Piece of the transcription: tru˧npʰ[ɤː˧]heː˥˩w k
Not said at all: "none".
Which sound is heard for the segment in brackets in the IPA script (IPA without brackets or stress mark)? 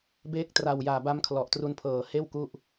ɤː˨˩